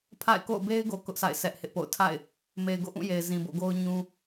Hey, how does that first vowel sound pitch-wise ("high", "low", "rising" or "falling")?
falling